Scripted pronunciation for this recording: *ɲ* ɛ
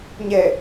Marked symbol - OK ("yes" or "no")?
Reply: yes